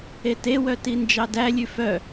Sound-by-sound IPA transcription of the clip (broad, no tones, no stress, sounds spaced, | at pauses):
e t e w œ t i n d͡ʒ ɑ d æ lʲ ʉ f œ